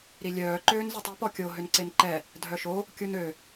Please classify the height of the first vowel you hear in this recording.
high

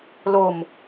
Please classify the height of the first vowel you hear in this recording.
mid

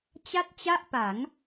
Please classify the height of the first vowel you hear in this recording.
low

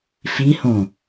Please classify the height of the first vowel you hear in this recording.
high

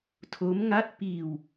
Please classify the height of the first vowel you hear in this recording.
mid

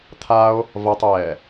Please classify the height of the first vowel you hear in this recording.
low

